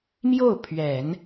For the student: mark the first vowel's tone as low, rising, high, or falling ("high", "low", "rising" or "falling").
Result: falling